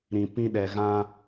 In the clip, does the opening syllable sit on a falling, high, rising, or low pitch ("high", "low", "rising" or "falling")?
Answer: low